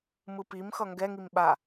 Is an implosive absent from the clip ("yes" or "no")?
no